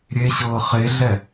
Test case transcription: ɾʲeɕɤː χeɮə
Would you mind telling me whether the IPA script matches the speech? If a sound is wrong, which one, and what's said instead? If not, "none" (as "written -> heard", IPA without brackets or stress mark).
ə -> ɛ